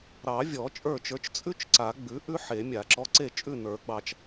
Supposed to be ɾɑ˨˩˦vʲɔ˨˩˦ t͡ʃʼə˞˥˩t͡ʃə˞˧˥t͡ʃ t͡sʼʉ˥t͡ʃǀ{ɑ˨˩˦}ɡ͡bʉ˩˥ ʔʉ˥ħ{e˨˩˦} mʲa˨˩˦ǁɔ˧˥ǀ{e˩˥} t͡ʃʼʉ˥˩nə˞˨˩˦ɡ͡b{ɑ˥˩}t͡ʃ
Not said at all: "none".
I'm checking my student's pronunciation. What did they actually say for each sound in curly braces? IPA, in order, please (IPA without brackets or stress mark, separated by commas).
a˨˩˦, e˨˩˦, e˥˩, ɑ˨